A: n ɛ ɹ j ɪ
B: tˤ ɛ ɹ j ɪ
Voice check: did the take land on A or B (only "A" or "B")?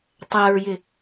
B